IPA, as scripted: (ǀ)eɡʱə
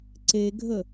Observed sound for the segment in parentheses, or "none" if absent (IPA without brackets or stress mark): ǀ